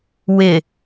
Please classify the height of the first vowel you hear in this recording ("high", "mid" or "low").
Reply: high